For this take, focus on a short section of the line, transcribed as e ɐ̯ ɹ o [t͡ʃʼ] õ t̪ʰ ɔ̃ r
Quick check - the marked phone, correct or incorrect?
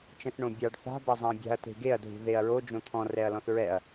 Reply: incorrect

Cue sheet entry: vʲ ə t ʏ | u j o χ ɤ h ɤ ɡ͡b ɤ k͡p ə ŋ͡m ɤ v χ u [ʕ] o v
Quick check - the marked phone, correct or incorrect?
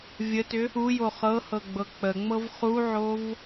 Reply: correct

